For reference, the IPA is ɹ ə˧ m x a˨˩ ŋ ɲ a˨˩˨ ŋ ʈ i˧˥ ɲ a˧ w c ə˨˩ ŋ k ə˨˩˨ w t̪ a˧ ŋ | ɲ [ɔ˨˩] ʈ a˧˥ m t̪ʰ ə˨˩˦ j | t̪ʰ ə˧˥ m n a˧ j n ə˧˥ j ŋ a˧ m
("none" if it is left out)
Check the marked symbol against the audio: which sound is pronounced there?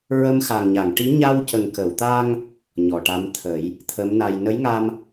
ɔ˨˩˨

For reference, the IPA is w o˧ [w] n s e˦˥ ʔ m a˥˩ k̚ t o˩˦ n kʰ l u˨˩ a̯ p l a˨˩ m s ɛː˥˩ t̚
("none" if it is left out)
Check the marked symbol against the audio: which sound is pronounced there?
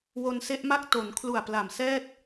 none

